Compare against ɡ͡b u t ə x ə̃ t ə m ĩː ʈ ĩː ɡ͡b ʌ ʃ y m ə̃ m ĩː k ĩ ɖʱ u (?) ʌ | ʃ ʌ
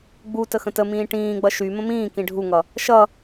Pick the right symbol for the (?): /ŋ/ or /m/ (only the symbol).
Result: ŋ